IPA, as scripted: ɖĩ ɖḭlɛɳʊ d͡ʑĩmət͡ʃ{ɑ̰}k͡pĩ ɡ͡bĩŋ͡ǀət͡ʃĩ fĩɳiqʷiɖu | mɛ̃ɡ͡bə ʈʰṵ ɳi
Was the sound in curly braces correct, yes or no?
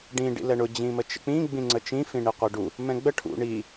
no